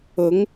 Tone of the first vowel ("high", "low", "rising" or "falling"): rising